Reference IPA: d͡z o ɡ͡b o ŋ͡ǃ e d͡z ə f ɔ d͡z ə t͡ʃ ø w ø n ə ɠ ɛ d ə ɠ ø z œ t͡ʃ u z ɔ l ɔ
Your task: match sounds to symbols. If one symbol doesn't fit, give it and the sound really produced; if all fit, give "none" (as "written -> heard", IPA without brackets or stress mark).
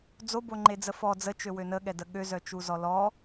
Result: ɡ͡b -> b